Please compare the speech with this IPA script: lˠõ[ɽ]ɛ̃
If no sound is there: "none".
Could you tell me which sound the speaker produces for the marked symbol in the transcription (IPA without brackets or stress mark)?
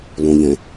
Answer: ʎ